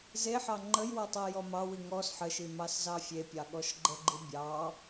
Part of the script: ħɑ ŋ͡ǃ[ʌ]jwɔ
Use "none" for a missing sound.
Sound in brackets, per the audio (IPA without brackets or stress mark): ə